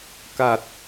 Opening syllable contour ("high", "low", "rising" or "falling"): low